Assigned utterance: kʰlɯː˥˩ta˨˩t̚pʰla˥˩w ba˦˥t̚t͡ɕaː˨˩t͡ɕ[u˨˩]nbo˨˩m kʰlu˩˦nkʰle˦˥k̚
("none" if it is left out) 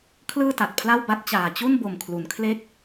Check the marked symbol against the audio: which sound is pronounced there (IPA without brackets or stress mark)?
u˥˩